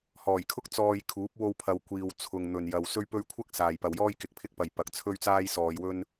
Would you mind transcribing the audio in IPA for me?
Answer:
h ɔː˨˩ j kʰ ʊ˥ k̚ t͡s ɔː˧ j kʰ uː˨˥ p̚ w o˧ w pʰ ɐ˨ w kʷ iː˨ w t͡sʰ ʊ˨ ŋ n̪ ɵ˨ n j ɐ˨ w s ɵ˥ ɥ p ɵ˥ ɥ kʷʰ ɐ˥ k̚ s aː˨ j p ɐ˨ w j ɔː˥ j k ɪ˨ k̚ pʰ ɪ˥ k̚ p ɐ˨ j p ɐ˨ k̚ t͡sʰ ɵ˥ ɥ t͡s aː˥ j s ɔː˧ j w ɵ˥ n

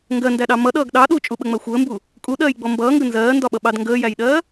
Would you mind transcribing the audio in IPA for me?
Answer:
ŋ ɡ ɜ n d æ ɗ ɑ m ʌ ɗ ʌː ɡ ɗ ɑ ɗ u t͡ʃʼ u ɓ ə ŋ͡m ɜ xʷ əː m b u | kʼ u ɗ ɜː j ɡ͡b ɔ m b ʌː ŋ ɡ ə n z ɜː n d ɒ ɓ ʌ ɓ ɑ d ŋ ɡ əː j æ j ɗ ɜː

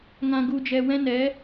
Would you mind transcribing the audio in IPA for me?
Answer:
ŋ ã˧ ɡ u˧ d͡ʒ ɛ˧ w ɛ̃˦ n ɛ˨˦

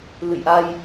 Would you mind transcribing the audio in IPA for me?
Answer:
l ɨ̰˧˨ j ʔ a˧ j

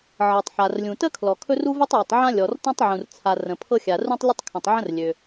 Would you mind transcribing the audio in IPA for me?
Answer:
ʕ ɤ˩ tˤ ħ a˩ r lʲ ũ˩ t ə˥ kʰ l ɔ˩ kʰ ɵ˥ r u˥ v u˥ tˤ j ɵ˩ tˤ ʕ ã˥ lʲ ɔ˩ r t ɔ̃˥ tˤ ʕ ũ˩ r t͡sʰ a˩ r ə̃˩ pʰ ɤ˥ xʲ a˩ r ũ˥ tˤ lʲ ə˥ tˤ kʰ ə̃˩ tˤ ʕ ə̃˥ r lʲ ø˩

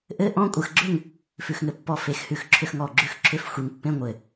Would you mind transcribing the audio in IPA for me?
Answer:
ʔ ɘ˧˥˧ ʔ ɔ̃˧˥˧ kʷʼ ə˧˩ x ɡ͡ǁ ʏ˥˨ ŋ | f ʉ˧ x ŋ ɘ˧ pː ɔ˥˨ f e˧˥˧ x h ʉ˧˩ x ǁʰ ʏ˧ x ŋ ɔ˧˩ ɡ͡ǁ ʉ˧ x ǁʰ ʏ˧˥˧ f xʷ e˧ ŋ pː ẽ˧˥˧ ŋʷ ɘ˧˩

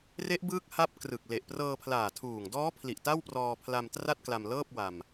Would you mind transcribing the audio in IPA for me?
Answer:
r e˦˥ ʔ b ɯː˦˥ k̚ h a˦˥ p̚ k r ɯ˨˩ k̚ l e˨˩ ʔ p r ɤː˧ pʰ l aː˨˩ tʰ uː˨˩ ŋ d ɔː˦˥ pʰ l i˨˩ ʔ t a˥˩ w p r ɔː˧ pʰ l a˧ m t r a˥˩ t̚ k l a˧ m l ɤː˥˩ p̚ w a˧ m

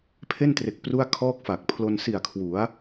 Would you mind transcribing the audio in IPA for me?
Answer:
pʰ e˥˩ n t r e˨˩ k̚ p r u˥˩ a̯ kʰ ɔː˥˩ k̚ f a˨˩ k̚ pʰ l o˧ n s i˨˩ a̯ kʰ w u˩˦ a̯

